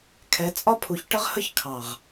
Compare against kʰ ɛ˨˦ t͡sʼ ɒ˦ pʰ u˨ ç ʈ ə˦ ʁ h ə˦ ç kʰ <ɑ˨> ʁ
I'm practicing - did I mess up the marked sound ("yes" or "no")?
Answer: no